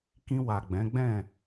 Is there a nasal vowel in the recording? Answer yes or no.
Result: yes